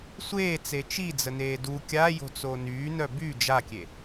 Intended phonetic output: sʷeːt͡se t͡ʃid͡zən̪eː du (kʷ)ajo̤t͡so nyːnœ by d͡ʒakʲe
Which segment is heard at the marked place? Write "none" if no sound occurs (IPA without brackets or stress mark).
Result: kʲ